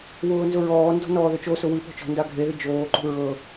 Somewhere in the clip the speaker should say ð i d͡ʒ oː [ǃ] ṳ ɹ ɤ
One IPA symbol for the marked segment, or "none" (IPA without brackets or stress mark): ǃ